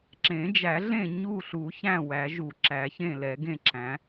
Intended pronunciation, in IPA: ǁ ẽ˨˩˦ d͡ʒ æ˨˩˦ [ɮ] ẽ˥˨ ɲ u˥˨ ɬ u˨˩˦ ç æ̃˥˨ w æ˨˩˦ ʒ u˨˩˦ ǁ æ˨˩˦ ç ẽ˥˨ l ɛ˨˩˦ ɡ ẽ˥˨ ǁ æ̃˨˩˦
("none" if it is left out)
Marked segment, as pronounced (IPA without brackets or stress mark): ɮ